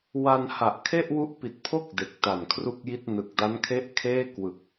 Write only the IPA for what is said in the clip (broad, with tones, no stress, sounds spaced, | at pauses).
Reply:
w a˧ n h a˨˩ ʔ kʰ e˥˩ ʔ w u˦˥ ʔ p i˨˩ t̚ pʰ o˥˩ k̚ d e˨˩ k̚ t a˨˩ n kʰ r u˥˩ k̚ j i˥˩ t̚ n ɯ˨˩ k̚ d a˦˥ n kʰ e˥˩ ʔ kʰ eː˥˩ k w ɯ˨˩ k̚